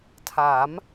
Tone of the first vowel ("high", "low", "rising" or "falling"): rising